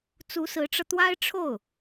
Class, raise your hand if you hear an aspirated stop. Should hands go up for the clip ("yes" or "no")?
yes